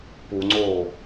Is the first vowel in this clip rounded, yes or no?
yes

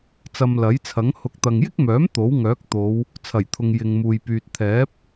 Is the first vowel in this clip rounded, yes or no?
no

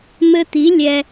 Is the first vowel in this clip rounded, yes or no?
no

